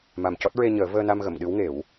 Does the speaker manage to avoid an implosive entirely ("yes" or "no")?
no